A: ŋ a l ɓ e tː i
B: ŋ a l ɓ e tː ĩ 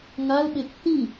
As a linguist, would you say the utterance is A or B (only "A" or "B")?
B